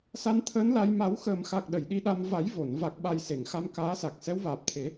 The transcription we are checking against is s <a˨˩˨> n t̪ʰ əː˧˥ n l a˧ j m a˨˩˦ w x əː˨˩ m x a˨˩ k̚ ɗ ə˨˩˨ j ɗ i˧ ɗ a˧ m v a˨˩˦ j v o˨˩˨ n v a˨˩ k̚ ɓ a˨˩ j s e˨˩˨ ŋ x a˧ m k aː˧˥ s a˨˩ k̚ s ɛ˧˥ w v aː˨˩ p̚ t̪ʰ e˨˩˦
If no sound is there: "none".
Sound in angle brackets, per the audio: a˧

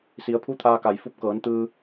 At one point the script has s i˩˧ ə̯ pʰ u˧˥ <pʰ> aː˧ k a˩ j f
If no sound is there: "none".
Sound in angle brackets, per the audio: t̪ʰ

